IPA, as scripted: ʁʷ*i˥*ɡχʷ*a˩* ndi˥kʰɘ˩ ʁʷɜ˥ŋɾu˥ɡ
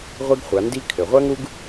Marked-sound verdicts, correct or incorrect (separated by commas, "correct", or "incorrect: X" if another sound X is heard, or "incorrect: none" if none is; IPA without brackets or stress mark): correct, incorrect: a˩˧